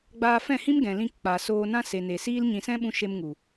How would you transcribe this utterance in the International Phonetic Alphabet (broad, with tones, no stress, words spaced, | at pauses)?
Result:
ɡ͡baː˧fɛ̃˦˨hĩ˦m ɡɛ̃˨lĩ˧kk͡paː˨ soː˧nã˦ se˨ne˨ siː˦l ɲĩ˧ sɛ̃˦ɓũ˧ ʃe˧mŋu˨